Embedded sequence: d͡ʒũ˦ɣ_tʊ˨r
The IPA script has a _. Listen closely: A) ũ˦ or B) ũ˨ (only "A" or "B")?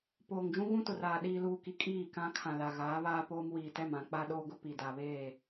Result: A